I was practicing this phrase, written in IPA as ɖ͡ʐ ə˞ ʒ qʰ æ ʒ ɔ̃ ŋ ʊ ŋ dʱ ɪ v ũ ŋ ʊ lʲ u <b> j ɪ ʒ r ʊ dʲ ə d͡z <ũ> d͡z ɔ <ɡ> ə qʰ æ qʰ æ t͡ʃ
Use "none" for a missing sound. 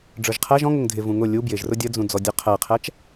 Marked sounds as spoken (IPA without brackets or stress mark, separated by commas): b, ũ, dʲ